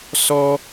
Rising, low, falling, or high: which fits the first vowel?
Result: high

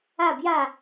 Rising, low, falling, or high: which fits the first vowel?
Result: falling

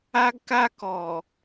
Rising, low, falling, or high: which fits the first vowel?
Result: high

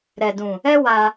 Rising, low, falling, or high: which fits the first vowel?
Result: low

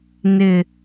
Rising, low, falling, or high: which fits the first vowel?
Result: high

